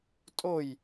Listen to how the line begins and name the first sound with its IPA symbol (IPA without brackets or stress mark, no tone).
tʼ